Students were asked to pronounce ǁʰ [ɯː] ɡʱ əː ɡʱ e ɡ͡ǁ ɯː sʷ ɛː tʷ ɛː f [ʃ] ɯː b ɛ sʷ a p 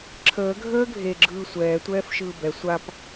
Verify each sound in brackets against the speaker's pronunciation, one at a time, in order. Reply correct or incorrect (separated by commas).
incorrect, correct